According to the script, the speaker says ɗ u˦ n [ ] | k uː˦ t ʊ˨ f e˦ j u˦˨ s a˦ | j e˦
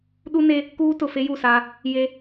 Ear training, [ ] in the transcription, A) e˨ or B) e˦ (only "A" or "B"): B